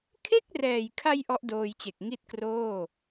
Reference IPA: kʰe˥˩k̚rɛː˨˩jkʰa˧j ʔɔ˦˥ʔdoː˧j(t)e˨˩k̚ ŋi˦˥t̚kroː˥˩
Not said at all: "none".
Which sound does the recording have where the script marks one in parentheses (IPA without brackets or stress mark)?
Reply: t͡ɕ